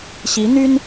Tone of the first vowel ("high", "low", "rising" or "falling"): rising